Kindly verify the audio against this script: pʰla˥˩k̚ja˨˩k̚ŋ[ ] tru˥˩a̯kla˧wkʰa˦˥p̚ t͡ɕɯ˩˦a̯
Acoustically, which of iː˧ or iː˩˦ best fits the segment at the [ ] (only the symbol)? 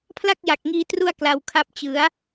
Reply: iː˧